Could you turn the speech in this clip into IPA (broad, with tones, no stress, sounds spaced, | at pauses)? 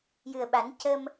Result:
j ɨ˨˩ ə̯ ɓ a˨˩˦ n c ə˧ m